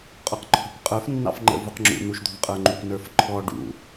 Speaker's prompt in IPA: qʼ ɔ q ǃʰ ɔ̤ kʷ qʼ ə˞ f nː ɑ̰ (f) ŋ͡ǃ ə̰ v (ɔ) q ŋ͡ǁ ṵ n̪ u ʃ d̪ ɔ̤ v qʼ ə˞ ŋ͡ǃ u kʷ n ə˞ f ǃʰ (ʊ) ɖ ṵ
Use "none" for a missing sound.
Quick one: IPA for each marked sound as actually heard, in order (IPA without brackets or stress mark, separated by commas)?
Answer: f, ʊ, ɔ